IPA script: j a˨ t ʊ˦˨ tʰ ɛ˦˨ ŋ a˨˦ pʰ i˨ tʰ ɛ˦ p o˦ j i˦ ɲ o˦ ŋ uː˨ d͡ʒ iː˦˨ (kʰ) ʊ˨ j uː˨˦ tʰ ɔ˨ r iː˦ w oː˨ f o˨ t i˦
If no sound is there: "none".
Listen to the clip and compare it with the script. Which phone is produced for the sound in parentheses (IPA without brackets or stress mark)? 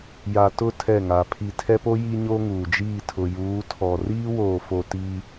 tʰ